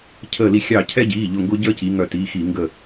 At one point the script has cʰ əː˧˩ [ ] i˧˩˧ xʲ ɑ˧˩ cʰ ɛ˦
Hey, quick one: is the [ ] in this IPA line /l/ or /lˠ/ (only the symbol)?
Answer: l